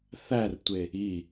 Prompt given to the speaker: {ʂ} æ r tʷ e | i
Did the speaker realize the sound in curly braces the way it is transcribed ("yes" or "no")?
no